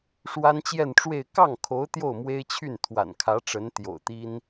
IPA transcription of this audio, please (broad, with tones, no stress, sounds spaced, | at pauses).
ʂ w a˥ n t͡ɕ j ɛ˥˧ n ʈ͡ʂ w e˥˧ ɪ̯ k ɑ˥˩ ŋ kʰ o˧˥ ʊ̯ t̪ j o˥˩ ʊ̯ m w e˥ ɪ̯ t͡ɕʰ y˥˩ n t̪ʰ w a̰˨˩ n kʰ ä˧˥ ʈ͡ʂ ə˧˥ n t̪ j o̰˨˩ ʊ̯ t̪ i˥ n